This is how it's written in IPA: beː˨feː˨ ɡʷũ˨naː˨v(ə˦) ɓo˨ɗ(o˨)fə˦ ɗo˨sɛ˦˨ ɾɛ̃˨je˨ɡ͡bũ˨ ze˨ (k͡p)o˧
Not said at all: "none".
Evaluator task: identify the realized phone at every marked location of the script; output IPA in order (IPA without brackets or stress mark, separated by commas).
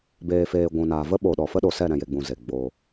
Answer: ə˦, ɔ˨, ɡ͡b